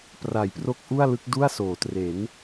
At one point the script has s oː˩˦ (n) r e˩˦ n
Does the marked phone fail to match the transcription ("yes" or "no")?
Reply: yes